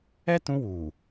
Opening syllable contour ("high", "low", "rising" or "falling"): high